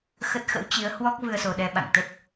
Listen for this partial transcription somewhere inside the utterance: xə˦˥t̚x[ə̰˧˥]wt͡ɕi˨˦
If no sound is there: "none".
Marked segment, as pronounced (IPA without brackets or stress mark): ə̰˧˥